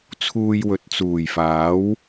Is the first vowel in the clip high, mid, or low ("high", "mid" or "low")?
high